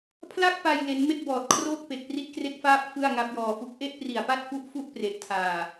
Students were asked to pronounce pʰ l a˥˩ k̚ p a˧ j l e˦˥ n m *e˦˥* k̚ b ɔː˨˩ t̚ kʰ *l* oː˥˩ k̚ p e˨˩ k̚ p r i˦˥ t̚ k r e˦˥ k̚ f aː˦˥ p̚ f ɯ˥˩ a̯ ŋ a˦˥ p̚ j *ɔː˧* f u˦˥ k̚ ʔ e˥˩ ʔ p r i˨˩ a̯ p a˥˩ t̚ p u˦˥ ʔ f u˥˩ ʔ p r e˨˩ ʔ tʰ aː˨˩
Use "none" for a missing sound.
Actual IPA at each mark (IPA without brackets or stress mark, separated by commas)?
e˥˩, r, ɔː˧